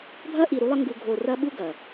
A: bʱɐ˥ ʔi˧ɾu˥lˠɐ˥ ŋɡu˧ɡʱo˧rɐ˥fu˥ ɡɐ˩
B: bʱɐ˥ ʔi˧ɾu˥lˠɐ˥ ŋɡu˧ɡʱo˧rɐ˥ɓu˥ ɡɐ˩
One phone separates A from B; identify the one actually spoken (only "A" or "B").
B